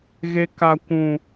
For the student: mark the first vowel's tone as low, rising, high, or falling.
high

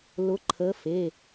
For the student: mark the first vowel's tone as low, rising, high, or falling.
rising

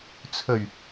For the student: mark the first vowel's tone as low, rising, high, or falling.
low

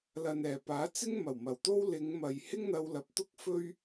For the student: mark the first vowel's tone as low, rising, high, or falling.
low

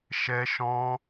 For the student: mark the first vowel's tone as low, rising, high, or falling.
high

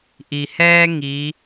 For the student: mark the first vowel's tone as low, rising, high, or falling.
low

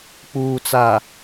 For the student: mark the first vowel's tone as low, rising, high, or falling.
low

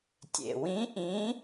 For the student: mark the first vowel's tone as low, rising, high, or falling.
low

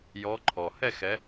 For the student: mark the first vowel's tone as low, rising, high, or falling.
rising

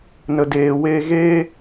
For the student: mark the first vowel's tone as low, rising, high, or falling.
low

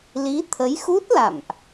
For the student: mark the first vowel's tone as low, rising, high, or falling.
rising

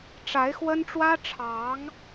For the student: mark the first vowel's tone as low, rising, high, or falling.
rising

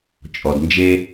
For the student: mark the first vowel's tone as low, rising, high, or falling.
low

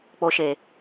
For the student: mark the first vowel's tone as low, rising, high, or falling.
low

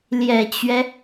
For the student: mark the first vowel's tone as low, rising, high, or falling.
low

